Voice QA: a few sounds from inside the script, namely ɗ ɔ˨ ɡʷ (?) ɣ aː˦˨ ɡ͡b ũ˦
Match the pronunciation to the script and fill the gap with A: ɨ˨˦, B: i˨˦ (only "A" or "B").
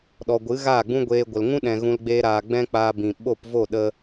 A